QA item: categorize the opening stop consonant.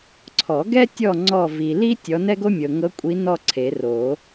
click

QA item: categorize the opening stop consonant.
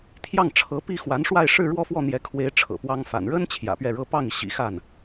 aspirated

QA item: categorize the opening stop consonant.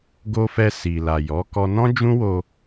plain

